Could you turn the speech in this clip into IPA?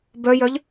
b œ j œ ʎ

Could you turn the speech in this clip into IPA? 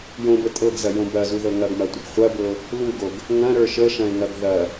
j õ b ə tʼ ɤ ɡ z ɐ j õ b ɐ z u ð ɤ ŋ ɐ ɡ m ɐ tʷ ə ɡ χʷ ɐ b ɤ | l u ɡ o ɡ | ŋ ɐ̃ ɾ ə˞ ʃ ə ʃ ɐ̃ ɪ̯ ŋ ɐ ɡ ð ɐ

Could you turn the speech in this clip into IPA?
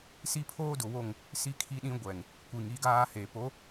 s i˦ pʰ oː˦ d ʊ˨ w o˦˨ ŋ | s i˦ kʰ i˦ ɗ ĩ˦ ɡʷ ɛ˨ ŋ | kʷ i˨ ŋ i˦ ɡ aː˦ h eː˨ p o˨˦

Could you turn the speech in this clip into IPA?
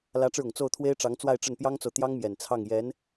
l ä˧˥ ʈ͡ʂ ɻ̩˧ ʊ˨˩ ŋ t͡s o˥˩ ʊ̯ t̪ʰ w e˥ ɪ̯ ʈ͡ʂ ɑ˧˥ ŋ t͡s w a˥˧ ɪ̯ ʈ͡ʂ ə˥˩ n p j ɑ˥ ŋ t͡s o˨ ʊ̯ t̪ j ɑ˥ ŋ m j ɛ˨˩ n t͡sʰ ɑ˥˩ ŋ j ɛ˧˥ n

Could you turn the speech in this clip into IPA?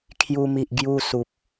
kʰ j u˧ m i˨ ʔ ɡ j u˧ s u˨ p̚

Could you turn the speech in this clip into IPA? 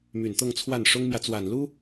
m y˨˩ n t̪ ɤ˥˧ ŋ t͡sʰ w a˥˩ n ʂ ʊ˥ ŋ m j ä˨ t͡s w a˨˩ n l u˥

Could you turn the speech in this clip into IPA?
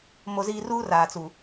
m o˨ z iː˨ r uː˦ r aː˨ t͡s u˨

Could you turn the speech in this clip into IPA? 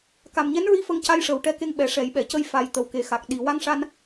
k a˨˩ m ɲ ɛ˧˥ n ɹ i˧˥ f ə˧ ŋ c a˧ j ʂ ə˨˩ w ʈ ɛ˧ k e˧ ŋ ɓ ɛ˨˩ ʂ ɛ˨˩˦ j ɓ ɛ˨˩˨ c ə˧ j f a˨˩ j t̪ ə˨˩ w k e˨˩ x a˨˩ k̚ ɗ i˨˩ w a˧ ŋ ʂ a˧ n

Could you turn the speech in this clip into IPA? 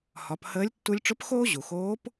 h ɒ˩˧ p h əː˧˥ lʲ tː u˧ lʲ ʈ͡ʂ ʊ˧˥ p x oː˥ ʑ u˩ x oː˧˥ p

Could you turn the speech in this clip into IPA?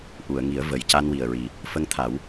ʔ u˨˩˨ ə̯ ŋ i˨˩˦ ə̯ v ə˨˩ j c a˧ n w i˨˩ ə̯ ɹ i˨˩ | f ə˧ ŋ t̪ʰ a˨˩˦ w

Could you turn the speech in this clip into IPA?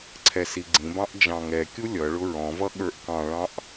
ǀʰ ɛ s i ɡ͡ǀ ĩ b ɑ̃ ʔ d͡ʒ ɑ̃ ŋ ɛ kʲ u lʲ ʌ ɭ ʊ ɹ ɔ̃ v ʌ ɠ ə˞ ʔ k ɑ̃ ɭ ɑ̃ ʔ

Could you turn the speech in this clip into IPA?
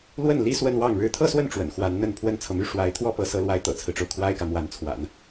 l w ə˥˩ n l i˥ s w ə˥˧ n w ɑ˥˩ ŋ ɻ ɻ̩˧˥ t̪ʰ ɤ˥˧ s w ə˥˩ n ʈ͡ʂ w ə̰˨˩ n x w a˧˥ n n̪ ə˥˩ n pʰ w ə˥ n t͡sʰ ɤ˨ m y˥˩ ʂ w a˧˥ ɪ̯ t̪ʰ w ɔ˥ p ɤ˧˥ s ɤ˧˥ l w a˧˥ ɪ̯ t̪ ɤ̰˨˩ t͡sʰ ɹ̩˦ ʈ͡ʂ o˩ ʊ̯ kʰ w a˥ ɪ̯ k ä˨ m w a˧˥ n t͡sʰ w a̰˨˩˦ n

